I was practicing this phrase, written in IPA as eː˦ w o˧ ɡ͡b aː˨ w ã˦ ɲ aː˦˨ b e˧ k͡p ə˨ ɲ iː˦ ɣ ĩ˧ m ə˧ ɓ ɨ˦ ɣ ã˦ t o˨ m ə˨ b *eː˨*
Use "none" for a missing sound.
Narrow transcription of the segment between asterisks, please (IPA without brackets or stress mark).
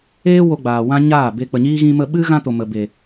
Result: e˨